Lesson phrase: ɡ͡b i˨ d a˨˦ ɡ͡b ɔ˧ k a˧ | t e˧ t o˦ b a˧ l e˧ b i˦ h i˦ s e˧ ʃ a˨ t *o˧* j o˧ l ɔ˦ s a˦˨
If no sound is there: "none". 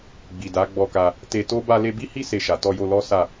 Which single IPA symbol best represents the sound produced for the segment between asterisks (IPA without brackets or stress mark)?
ɔ˧